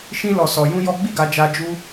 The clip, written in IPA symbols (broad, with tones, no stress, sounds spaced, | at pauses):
ʃ ĩ˦ l ɔ˧ s ɔ˧ j ũ˦ j ɔ˦ ɡ͡b i˦˨ ɡ a˧ d͡ʒ a˧ d͡ʒ u˦